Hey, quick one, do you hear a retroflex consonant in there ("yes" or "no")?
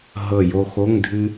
no